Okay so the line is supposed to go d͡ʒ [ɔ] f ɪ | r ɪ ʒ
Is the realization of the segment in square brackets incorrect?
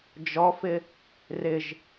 no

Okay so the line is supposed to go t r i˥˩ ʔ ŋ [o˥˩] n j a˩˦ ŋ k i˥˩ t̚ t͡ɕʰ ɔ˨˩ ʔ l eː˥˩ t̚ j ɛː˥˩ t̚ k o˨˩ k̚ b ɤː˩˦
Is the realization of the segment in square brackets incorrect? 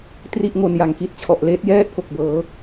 yes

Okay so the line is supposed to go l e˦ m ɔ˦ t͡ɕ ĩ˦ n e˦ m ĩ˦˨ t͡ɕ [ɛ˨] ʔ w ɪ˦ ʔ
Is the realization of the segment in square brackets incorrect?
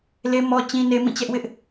yes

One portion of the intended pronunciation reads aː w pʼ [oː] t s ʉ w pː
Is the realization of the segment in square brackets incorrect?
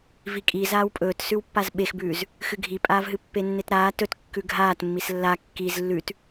yes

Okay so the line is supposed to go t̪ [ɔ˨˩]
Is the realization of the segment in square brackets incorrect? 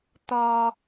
yes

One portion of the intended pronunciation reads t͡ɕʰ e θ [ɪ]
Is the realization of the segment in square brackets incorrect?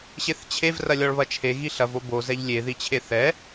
yes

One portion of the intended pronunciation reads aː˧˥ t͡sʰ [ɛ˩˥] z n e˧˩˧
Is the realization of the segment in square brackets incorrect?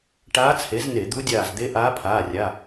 yes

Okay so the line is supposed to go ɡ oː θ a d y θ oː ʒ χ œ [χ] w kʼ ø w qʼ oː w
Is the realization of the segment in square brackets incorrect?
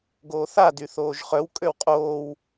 yes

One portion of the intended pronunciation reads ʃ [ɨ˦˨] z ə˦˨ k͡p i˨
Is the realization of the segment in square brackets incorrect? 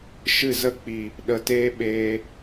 no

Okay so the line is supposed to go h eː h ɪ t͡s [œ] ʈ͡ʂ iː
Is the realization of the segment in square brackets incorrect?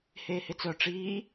no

